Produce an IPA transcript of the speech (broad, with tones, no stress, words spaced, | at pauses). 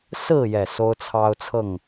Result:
sɹ̩˥˨jɛ˨˩ so˦ʊ̯t͡sʰɑ˦ʊ̯t͡sʰɤ˥˨ŋ